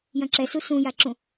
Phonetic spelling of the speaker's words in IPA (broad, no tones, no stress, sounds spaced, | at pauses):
j ɐ̃ ǁ ɛ s u s ũ j a ǁ ũ